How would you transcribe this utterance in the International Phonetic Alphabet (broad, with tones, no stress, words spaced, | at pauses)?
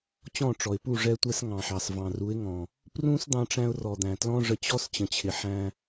t͡ɕɔ̃˦˨ʈ͡ʂɔ˨ɪ̯pu˦˨ ʐɛ˧tʷɛ˧s ŋɑ̃˨ħɑ˨s vɑ̃˨ru˨˦ɪ̯ŋɔ̃˨ | prũ˦s d̪ɑ̃˦ʈ͡ʂæ̃˦ʊ̯ rɔ˨d̪æ̃˨tlɔ̃˦ ʐə˧t͡ɕɔ˦s t͡ɕə̃˨t͡ɕʰɪ˨ħæ̃˧